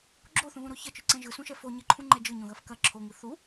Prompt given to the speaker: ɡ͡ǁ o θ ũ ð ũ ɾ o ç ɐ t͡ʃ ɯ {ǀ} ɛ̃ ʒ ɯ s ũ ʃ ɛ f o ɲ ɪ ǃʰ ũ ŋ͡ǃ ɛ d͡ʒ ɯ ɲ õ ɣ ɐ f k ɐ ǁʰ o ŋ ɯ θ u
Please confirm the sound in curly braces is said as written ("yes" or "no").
yes